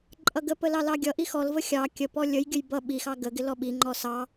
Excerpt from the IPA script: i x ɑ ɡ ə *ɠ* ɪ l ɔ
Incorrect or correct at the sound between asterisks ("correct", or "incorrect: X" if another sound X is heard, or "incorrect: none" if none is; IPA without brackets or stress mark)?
incorrect: ɡ